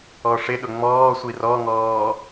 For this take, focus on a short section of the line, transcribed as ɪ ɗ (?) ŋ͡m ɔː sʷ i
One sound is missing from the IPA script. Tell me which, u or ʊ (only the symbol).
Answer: ʊ